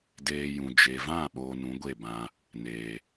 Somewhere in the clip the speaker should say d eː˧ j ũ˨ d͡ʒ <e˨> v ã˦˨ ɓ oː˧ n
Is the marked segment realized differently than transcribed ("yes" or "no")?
no